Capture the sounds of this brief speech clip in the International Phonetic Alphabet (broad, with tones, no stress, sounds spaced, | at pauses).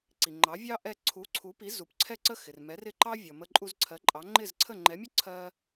ǀ i˩ ŋ͡ǃ ɑ˩˥ vʲ ɑ˥ ʔ ɛ˧ ǀʰ u˩˥ ǀʰ u˩˥ p i˩˥ z u˩ p ǀʰ ɛ˥˩ ǀ ə˥˩ x ɪ˩ r m ɛ˩˥ r ɪ˥˩ ǃ ɑ˥ vʲ ʌ˩ m ə˧ ǃʼ u˧ z ǀʰ ɜ˩˥ ǃʼ ɑ˩˥ ŋ͡ǃ ɪ˥˩ z ǀʰ ə˥˩ ŋ͡ǃ ɛ˩˥ mʲ ʊ˥ ǀʰ ɜ˧